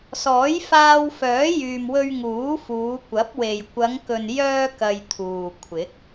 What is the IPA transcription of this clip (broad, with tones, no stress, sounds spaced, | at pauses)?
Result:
s ɔː˨˥ j f aː˧ w f œː˨˥ j yː˨ m w ɵ˧ ɥ ŋ uː˨˥ f uː˨˧ kʷ ɐ˨˥ p̚ w e˨ j kʷ ɐ˨˧ ŋ k ɵ˨ n j œː˧ k ɐ˧ j t̪ʰ uː˨ kʷʰ ɪ˨˥ k̚